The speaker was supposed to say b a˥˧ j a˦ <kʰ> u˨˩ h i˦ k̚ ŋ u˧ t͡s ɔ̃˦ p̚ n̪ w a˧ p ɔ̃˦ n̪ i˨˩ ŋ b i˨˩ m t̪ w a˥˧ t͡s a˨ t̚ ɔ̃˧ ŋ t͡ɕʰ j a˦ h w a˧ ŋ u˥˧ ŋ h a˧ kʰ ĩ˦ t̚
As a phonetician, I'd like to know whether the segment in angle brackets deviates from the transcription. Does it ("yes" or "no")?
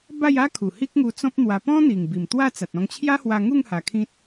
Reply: no